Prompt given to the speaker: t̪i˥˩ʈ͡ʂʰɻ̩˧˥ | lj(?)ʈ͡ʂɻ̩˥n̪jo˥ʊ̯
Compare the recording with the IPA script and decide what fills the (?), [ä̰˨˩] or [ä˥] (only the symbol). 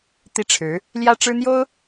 ä˥